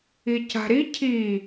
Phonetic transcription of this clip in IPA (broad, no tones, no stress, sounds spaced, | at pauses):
i c a̤ ɾ i cʰ i